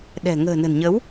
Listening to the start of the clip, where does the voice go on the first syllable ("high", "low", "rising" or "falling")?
low